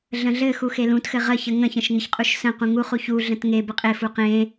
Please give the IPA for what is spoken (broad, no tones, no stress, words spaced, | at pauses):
ɮə̃ɮɘxu xelũtxɘ ʁəçə ŋə̃çə̃ʃ ŋɘçqʼuʃsə̃qũ ŋuχuç uɮə̃t ŋe bɘqʼefu qẽ